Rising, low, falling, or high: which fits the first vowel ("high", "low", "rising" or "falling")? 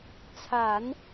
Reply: low